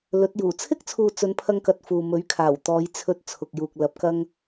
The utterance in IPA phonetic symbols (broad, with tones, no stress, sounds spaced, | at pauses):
l ɵ˨˥ t̚ j uː˨˩ t͡sʰ ɪ˥ k̚ t͡sʰ uː˨ t͡s ɵ˨˧ n pʰ ɐ˧ ŋ k ɐ˧ t̚ f uː˨ m ɵ˨˥ ɥ kʰ aː˨˩ w t̪ ɔː˨˧ j t͡sʰ ɵ˧ t̚ t͡sʰ ʊ˨ k̚ j uː˨ k̚ l ɐ˨˥ p̚ k ɐ˧ ŋ